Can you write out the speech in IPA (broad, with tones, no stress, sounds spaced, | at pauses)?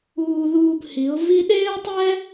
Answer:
uː˧ ð uː˧ b h i˨˦ ʊ̯ v i˦ ɗ eː˦ ʊ̯ tˤ ɛ˦